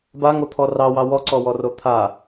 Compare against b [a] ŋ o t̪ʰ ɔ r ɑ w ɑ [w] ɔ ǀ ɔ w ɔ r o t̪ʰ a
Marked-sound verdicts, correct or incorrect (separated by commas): correct, correct